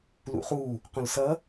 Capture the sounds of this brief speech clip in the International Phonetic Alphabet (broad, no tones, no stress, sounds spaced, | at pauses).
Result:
l ṵ χ u | q õ l s ʌ